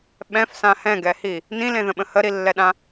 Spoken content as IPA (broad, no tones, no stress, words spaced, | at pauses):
ɓɛ̃fsã hɛ̃ɡɛhi | nĩlẽðə̃ɓə̃ həɾilːɛɗã